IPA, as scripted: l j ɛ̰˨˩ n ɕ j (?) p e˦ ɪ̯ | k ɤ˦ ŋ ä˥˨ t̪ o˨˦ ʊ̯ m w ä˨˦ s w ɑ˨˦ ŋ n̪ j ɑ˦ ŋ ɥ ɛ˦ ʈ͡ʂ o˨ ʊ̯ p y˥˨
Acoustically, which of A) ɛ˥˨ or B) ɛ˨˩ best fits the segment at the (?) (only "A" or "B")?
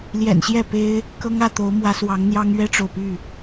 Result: A